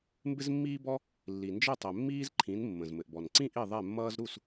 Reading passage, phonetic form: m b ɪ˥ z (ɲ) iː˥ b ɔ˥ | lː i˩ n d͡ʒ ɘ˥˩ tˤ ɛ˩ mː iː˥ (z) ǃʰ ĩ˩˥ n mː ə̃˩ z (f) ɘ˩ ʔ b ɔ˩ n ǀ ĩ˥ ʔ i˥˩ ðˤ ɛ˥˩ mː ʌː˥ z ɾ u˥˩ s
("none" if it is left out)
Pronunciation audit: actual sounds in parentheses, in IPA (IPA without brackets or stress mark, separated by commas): mː, z, m